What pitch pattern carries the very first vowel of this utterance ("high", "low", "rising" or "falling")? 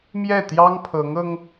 falling